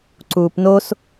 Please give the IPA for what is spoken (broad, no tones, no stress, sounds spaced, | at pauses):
ǀ uː p n o s